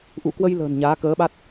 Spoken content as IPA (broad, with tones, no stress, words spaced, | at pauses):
ʔṵ˧˨kwə˧jlə̤ː˨˩n ɲaː˨˦kəː˨˦ɓa˦˥t̚